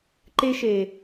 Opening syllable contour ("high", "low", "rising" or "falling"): high